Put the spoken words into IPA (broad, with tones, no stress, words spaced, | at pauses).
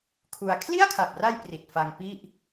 kʰu˧a̯ kʰli˥˩a̯kʰa˨˩p̚ra˧j pri˨˩t̚ fa˧ŋpi˥˩ʔ